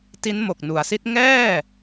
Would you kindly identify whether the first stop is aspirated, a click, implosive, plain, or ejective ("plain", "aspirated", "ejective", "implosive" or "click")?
plain